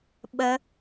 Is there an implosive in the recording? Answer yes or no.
yes